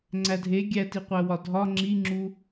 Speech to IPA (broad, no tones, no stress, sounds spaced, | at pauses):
ŋ͡ǀ æ dʱ e ɡʲ æ t i qʷ æ w ɒ dʱ ɒ ŋ͡ǁ i ŋ͡ǁ u